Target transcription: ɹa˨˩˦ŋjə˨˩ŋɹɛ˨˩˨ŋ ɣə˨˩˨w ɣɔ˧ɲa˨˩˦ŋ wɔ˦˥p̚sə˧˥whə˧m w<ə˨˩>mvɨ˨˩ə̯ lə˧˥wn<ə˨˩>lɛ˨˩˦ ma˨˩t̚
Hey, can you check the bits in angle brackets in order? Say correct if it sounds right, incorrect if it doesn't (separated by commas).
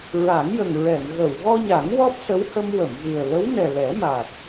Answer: incorrect, incorrect